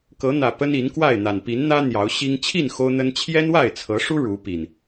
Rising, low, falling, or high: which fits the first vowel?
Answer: rising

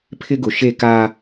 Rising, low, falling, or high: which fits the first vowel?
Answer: high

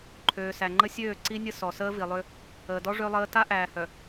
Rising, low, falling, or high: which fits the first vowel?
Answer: low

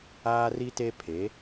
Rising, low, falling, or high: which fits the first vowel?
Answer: high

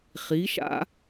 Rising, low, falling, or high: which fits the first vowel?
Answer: rising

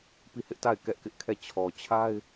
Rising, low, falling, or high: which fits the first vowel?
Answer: falling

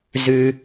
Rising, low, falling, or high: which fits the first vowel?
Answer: low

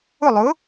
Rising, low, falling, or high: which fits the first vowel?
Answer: falling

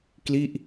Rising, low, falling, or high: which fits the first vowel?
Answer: falling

